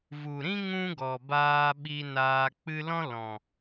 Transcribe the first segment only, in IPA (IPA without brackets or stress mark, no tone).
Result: v